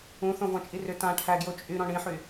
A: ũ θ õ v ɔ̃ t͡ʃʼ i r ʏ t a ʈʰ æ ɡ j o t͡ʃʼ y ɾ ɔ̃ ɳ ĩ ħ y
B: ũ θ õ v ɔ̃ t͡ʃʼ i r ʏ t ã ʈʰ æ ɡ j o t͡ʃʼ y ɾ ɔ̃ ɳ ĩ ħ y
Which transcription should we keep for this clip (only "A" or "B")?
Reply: B